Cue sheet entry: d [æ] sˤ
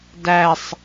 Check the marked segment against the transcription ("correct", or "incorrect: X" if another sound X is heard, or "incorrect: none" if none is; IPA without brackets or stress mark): correct